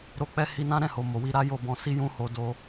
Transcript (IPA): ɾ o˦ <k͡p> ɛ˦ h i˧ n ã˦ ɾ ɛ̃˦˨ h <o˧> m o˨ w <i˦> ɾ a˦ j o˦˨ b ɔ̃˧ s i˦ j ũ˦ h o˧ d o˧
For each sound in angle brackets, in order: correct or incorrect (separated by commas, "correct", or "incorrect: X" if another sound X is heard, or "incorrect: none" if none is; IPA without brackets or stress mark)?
correct, incorrect: o˨, incorrect: i˧